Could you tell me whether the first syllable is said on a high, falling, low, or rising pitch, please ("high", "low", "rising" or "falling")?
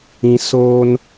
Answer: high